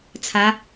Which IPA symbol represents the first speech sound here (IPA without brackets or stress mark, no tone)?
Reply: t͡sʰ